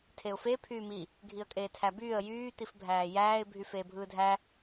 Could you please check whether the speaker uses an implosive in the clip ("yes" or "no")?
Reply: no